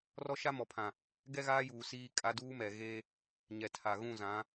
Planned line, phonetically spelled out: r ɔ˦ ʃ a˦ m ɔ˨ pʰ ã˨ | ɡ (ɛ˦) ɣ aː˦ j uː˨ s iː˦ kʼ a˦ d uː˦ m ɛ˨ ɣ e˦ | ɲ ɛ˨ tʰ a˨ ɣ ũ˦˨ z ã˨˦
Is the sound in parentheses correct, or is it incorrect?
correct